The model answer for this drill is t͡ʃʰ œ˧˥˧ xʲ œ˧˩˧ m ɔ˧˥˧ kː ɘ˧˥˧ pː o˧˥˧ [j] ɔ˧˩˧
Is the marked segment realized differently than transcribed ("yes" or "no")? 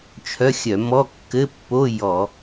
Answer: no